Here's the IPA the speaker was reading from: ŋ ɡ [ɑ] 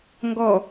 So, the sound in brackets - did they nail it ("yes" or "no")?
no